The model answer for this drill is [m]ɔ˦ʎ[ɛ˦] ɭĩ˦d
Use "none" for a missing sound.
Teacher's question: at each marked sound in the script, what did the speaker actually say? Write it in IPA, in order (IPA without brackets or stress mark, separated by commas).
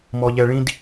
m, ɛ˦